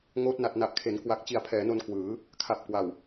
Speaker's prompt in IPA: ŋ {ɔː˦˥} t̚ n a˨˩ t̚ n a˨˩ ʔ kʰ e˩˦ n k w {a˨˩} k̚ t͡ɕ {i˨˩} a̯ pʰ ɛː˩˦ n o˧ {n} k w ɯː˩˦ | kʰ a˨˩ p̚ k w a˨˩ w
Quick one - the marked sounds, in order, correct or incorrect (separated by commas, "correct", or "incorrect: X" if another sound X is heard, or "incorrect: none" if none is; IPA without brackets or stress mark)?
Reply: incorrect: oː˦˥, correct, correct, correct